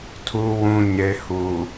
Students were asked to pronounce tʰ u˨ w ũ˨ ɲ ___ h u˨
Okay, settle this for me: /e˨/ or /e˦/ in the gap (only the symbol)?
e˨